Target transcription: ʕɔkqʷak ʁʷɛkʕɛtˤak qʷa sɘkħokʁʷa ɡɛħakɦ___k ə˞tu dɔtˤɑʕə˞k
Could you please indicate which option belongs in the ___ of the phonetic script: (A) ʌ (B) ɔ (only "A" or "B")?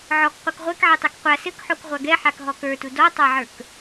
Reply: B